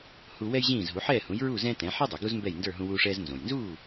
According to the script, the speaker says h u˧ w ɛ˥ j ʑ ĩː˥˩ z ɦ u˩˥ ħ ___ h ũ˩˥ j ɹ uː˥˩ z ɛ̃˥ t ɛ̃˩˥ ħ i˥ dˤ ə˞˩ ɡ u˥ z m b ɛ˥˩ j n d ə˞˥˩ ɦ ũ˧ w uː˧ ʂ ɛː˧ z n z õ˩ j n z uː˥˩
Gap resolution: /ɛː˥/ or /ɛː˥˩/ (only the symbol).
ɛː˥˩